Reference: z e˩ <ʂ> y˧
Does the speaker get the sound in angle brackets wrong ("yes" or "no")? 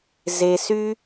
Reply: yes